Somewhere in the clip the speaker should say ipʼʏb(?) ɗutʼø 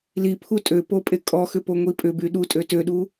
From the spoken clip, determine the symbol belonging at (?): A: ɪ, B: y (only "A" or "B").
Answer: B